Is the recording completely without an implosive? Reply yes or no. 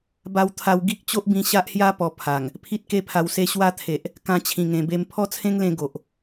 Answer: yes